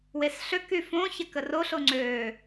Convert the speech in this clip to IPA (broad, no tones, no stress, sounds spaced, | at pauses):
w e s ɬ ø k y f õ ç ɛ k ə r o ɬ o ŋ͡ǀ ø